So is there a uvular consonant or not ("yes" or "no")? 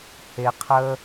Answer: yes